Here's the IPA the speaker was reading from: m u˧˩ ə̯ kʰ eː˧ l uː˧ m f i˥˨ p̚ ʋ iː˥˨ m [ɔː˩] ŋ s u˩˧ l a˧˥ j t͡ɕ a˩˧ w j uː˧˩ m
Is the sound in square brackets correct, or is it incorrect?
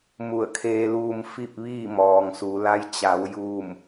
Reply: correct